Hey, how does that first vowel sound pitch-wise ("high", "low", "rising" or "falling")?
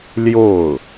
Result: falling